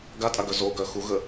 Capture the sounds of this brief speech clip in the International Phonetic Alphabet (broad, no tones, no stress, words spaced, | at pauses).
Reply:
ɡatʼaɡœ zoɡœ xuɣə